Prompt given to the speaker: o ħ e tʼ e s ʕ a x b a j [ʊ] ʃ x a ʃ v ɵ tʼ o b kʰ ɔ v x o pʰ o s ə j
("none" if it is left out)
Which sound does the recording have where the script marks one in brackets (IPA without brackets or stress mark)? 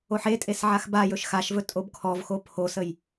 ɵ